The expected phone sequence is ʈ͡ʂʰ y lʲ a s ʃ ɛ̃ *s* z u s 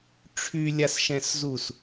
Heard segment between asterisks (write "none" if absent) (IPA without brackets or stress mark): s